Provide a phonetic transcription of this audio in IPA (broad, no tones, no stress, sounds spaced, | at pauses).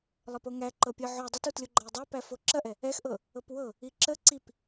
lˠ ə p o ŋ æ ǃ ɤ pʲ ɤ ʕ o dˤ ɛ t u t lʲ o ɡ͡ǃ ɐ j dˤ æ p æ f o ǁ ɐ ʔ ɛ | ɛ x ʔ ɤ | ɤ p w ɤ | i ǁ ə ǀ i p